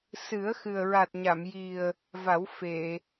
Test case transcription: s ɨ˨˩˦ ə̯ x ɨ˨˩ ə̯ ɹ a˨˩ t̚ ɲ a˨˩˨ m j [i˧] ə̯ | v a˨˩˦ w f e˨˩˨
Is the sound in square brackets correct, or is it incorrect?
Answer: incorrect: i˨˩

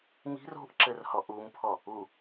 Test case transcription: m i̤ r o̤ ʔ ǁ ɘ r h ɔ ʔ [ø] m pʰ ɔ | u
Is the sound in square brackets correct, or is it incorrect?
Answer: incorrect: u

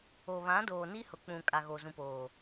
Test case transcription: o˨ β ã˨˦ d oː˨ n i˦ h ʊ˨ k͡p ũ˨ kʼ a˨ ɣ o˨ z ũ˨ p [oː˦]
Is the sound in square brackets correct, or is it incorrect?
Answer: incorrect: oː˨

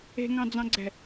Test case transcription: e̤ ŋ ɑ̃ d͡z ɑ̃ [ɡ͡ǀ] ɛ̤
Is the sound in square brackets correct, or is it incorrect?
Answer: correct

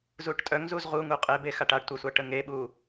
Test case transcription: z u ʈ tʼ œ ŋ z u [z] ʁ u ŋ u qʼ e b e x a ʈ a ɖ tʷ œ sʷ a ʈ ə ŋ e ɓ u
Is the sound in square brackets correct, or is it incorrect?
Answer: correct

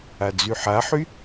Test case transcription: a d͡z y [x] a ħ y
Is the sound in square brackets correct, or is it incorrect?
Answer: incorrect: ħ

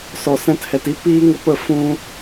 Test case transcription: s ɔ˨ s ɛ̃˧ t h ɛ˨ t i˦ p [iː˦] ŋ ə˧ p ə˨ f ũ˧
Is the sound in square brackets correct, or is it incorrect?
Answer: correct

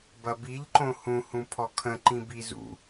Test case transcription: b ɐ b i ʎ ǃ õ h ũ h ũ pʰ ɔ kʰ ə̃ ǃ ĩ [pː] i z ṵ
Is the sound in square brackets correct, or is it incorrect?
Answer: incorrect: b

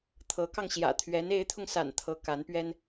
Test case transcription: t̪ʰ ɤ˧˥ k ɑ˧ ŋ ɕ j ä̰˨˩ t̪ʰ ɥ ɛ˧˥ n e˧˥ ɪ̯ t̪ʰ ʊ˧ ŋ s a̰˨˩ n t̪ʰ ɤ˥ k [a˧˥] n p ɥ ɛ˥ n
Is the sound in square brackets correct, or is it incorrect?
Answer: correct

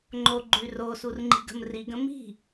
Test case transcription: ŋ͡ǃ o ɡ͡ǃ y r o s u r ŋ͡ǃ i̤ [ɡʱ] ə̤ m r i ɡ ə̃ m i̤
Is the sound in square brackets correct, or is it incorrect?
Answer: incorrect: ɡ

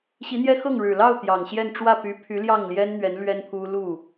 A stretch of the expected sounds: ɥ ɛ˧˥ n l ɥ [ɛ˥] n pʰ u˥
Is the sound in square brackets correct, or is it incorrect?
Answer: correct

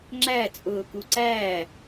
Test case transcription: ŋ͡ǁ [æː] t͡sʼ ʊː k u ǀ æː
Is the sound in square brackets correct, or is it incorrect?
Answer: incorrect: æ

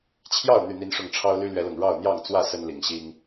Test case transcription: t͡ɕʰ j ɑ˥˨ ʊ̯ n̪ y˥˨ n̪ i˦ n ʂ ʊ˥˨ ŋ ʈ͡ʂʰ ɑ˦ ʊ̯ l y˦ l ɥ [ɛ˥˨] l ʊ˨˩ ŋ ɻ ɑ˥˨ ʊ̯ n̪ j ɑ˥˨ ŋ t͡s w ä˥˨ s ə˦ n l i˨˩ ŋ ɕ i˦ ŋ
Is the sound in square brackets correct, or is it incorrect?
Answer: incorrect: ɛ˨˦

